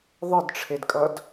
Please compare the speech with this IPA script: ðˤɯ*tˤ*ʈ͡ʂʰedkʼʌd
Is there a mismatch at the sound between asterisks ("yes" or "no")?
yes